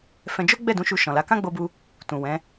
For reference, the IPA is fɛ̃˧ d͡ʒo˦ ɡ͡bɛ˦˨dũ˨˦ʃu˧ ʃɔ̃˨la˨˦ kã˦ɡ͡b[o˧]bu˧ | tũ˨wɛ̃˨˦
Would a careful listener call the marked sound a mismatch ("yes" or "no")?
no